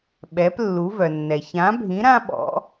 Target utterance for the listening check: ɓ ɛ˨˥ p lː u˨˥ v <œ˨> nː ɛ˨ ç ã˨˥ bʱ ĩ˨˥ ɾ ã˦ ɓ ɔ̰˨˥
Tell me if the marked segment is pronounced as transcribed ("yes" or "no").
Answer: yes